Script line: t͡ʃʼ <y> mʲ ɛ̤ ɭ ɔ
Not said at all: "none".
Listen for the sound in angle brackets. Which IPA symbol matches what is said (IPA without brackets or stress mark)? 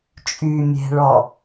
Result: y